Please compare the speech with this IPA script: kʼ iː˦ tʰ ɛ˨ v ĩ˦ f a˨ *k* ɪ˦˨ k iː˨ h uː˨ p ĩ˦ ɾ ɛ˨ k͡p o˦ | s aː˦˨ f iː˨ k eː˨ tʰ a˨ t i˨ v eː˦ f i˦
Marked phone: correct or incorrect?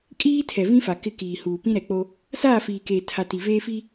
correct